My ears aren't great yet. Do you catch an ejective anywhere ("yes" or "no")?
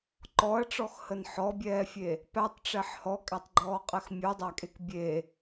yes